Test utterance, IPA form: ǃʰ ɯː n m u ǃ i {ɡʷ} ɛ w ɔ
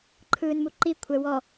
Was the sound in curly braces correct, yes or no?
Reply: no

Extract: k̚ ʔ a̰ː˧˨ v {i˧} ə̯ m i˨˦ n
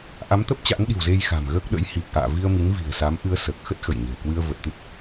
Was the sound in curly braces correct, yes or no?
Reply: yes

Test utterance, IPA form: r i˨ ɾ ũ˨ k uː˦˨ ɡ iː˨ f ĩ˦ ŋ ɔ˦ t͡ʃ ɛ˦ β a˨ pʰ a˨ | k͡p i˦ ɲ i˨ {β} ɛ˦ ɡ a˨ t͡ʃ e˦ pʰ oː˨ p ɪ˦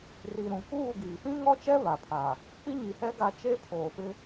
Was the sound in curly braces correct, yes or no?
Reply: no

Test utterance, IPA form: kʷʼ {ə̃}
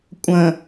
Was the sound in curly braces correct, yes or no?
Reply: yes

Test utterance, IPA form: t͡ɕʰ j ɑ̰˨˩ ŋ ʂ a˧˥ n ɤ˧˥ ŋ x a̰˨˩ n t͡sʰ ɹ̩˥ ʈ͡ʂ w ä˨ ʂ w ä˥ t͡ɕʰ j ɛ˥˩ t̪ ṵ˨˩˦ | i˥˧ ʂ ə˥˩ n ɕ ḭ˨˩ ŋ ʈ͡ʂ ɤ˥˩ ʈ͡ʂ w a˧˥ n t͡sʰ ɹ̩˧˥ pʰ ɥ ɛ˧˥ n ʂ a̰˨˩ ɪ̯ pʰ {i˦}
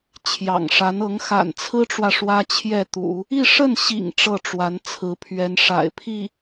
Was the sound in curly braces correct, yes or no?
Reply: no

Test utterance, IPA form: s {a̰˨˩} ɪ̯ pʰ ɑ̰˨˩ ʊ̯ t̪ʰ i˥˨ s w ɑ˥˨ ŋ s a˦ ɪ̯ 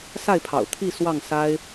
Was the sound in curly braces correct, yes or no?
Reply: no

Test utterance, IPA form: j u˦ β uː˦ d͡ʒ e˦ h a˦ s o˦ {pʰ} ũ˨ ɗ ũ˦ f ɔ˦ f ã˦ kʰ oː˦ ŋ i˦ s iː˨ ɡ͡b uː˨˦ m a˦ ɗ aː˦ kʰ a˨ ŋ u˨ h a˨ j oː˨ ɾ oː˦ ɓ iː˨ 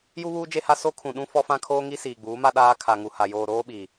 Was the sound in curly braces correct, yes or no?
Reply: no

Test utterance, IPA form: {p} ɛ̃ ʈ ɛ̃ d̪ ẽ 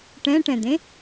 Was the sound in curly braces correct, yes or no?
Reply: no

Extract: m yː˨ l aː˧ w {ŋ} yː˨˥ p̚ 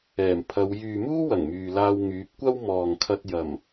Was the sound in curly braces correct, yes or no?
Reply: yes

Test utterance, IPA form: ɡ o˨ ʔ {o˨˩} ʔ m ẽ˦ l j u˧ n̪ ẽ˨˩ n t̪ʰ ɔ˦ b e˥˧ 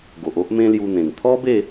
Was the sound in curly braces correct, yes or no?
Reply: no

